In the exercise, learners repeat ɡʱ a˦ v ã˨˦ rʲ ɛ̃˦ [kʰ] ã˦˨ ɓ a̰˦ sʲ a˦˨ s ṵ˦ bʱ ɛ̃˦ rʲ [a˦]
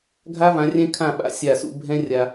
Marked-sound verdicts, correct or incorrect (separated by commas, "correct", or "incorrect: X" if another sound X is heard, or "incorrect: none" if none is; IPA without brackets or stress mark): correct, correct